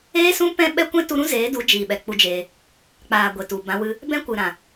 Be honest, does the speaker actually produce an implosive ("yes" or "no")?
yes